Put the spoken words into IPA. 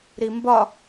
ɾimbɒ

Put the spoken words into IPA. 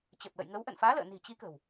t͡ɕə˨˩p̚lə̰˧˨jŋə˨˦w ʔə̰˧˨nfaː˨˦lə̰ː˧˨ni̤˨˩ t͡ɕi˨˦kə̤˨˩w

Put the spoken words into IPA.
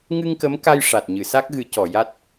ŋɨ˧ŋkə˧˥m ka˧jʂa˨˩t̚ɲɨ˨˩˨ sa˦˥k̚ɣɨ˨˩˦cɔ˨˩˨ja˦˥t̚

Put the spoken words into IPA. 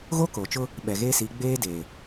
ɣo˦ko˨t͡ʃʊ˦ | ɓɛ˨ɣeː˦si˨˦ ɡ͡beː˦deː˨

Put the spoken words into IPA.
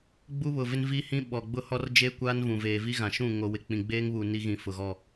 ɡ͡bu˦βʊ˨vɪ˦n vi˦hĩ˦ ɓɔ˨ɡ͡bʊ˦hɔ˦rd͡ʒe˦ kʷaː˦nvũ˨ veː˨vi˦ɣã˨ʃũ˦˨ ŋo˨ wɪ˨k͡pĩ˨ɡ͡beː˦ŋβuː˨ ni˦ɣĩ˨ fʊ˨ɣɔ˦˨

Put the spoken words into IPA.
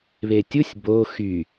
βetʲusʲ bo xy

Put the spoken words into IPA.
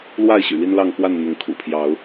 lwa˥˨ɪ̯ɕy̰˨˩ li˦nlɑ˥˨ŋkwa˥˨n n̪ʊ˨˦ŋkʰṵ˨˩pʰjɑ˨˦ʊ̯

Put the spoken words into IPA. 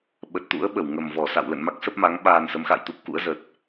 ɓə˨˩t̚t̪ṵ˧˥ə̯ɓə˧˩w ŋə˨˩mvɔ˧˩ sa̰˧˨wlə̰˧˨nma˦˥k̚ sə˦˥p̚ma˨˦ŋ ɓaː˧nsə˨˦m xa̰˧˨jt̪u˦˥p̚kṵ˧˥ə̯ zə˨˩t̚

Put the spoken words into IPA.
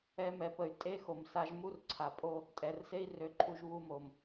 ɛ˧mɛ˨pə˨y̯ tʼe˦ xo˨msa˧ʒ mu˦rǀʰa˨ pʼo˧ | tʼɛ˨rse˦i̯rø˧ǃʰu˧ʒ βu˧mo˨m

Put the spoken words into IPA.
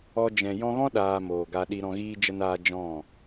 ɔ˧d͡ʒɛ̃˨ jɔ̃˧ɣɔ̃˦ ɗaː˧moː˨ɡa˧ ɗi˧ɾɔ̃˧ɣiː˦ d͡ʒə˦naː˦ d͡ʒɔ̃˦˨

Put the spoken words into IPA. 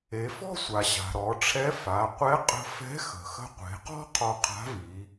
e˩˧fɔ̤˥sʷa˩ ɕa̤˩ɾɔ˩˧ʈ͡ʂʰɛ˧˥ fa˩˧ qʷɛ˧˥qʼə̤˧fɛ̤˧˥ xə̤˩xə̤˧qʷe̤˩˧qɔ̤˥ qʰɔ˧qʰa̤˧˥vi˩˧

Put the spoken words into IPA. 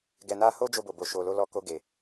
ɡɛ˨na˧ho˦ d͡ʒo˧bo˨bo˨ʃo˨ lo˧lɔ˧ko˧ɡe˨

